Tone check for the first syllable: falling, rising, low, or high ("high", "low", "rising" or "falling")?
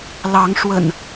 rising